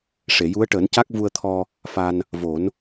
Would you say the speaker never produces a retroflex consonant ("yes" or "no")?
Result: no